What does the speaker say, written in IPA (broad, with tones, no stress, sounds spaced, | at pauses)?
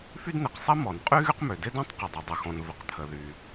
f y˥ d n̪ e˩ q sˤ ɐ˥ m ɔ˩ n qʼ y˥ ɣ y˥ q m ø˩ d ɪ˥ d ɔ̃˥ tˤ q ɪ˩ dˤ ɐ˩ dˤ ɐ˩ x ɔ̃˩ n v ɪ˩ q t̪ʰ ə˩ ð y˩